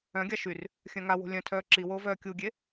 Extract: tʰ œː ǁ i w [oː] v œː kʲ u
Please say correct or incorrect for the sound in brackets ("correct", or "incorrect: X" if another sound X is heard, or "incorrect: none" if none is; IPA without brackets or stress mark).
correct